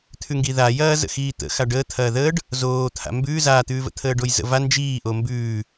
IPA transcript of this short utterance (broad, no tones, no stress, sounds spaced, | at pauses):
t̪ʰ ʉ ŋ ɡ i ð a j ɐː z ə̰ x iː t̪ ə̰ x a ɖ əː t̪ʰ ɐː ð əː ɖ | z oː t̪ʰ a̰ m b ʉː z a t̪ ʉː v ə̰ t̪ʰ əː ɖ o j z ə̰ v a n d͡ʒ iː ʔ o m b ʉː